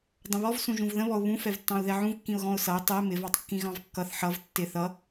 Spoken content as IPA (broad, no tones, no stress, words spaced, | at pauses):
dˤə̃βɔv sũʒũvðə̃βɔʊ̯ βũfɛvtːɑ̃ʊ̯ ðɛʕũvkːĩʊ̯ ɣɔ̃ʊ̯sʌɪ̯ tˤɛ mɪvɑtˤ kːĩɣɑ̃vkːʌθ ħʌv tːɪ θʌ